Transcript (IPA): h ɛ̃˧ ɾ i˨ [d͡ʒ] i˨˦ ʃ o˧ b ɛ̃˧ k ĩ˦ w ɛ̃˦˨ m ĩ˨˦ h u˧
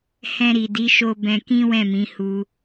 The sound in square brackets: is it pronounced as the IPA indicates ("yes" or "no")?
no